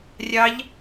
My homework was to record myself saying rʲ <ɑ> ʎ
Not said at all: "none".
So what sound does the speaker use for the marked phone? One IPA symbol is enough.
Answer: ɑ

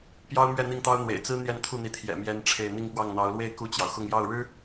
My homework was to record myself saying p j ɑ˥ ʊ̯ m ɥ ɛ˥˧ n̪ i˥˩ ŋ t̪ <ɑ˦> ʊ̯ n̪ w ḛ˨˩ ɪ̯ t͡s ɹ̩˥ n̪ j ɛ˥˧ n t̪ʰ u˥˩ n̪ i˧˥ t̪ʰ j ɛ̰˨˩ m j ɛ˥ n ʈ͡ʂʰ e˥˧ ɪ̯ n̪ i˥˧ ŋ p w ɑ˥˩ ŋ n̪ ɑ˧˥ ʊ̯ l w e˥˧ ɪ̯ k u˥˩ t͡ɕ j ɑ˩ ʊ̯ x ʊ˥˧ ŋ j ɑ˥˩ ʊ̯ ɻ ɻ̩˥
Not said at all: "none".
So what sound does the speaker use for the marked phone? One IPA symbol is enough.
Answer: ɑ˥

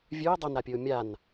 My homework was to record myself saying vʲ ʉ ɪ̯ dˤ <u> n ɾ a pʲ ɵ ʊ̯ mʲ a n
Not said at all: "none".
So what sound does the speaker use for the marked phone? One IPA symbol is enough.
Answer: o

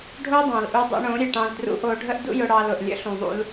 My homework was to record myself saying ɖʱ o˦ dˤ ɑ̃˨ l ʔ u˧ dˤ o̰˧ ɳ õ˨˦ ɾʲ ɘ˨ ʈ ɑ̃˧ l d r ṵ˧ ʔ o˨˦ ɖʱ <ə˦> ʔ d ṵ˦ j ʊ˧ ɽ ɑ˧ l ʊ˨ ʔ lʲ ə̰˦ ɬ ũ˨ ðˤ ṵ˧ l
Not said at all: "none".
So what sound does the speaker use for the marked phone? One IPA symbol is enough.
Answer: ə˦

